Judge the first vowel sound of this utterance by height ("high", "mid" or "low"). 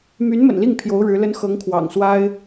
high